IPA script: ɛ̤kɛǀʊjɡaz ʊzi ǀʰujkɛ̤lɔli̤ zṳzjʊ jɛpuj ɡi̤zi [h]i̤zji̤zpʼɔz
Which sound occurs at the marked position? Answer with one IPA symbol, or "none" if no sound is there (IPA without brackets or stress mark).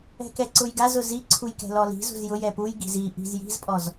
ʔ